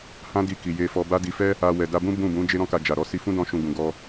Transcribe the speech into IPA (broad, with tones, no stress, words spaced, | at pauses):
hã˦di˧ki˨ je˧fɔ˧ba˦ di˧fɛ˦ | a˧ wɛ˨da˧bũ˦ bũ˦˨bũ˨˦ d͡ʒe˦ɾɔ̃˦ka˧ d͡ʒa˨ɾɔ˨˦ si˧fũ˦dɔ̃˧ʃũ˨ ɡũ˨ɡɔ˧